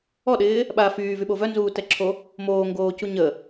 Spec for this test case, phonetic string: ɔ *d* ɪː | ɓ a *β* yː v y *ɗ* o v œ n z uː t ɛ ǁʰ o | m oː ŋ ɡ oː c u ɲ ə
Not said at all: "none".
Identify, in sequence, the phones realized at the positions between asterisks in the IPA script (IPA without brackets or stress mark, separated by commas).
ɗ, f, ɓ